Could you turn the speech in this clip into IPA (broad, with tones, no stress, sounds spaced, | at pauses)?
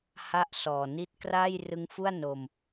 h a˥˩ ʔ s ɔː˨˩ n i˥˩ t̚ k r aː˥˩ j r ɯ˦˥ ŋ f u˥˩ a̯ n o˧ m